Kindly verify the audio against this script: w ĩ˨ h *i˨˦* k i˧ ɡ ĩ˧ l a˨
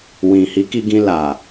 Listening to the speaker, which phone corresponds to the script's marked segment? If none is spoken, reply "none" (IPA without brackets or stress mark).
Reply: i˨˦